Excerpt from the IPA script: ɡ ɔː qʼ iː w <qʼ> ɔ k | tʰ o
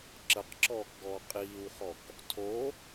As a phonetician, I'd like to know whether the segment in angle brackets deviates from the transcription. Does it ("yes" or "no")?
yes